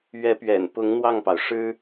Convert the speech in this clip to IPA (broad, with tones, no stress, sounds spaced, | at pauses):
ɥ ɛ˧˥ p ɥ ɛ̰˨˩ n p ʊ˧˥ ŋ n̪ w ɑ˥˩ ŋ p ɑ˩ ʊ̯ ʂ ɻ̩˥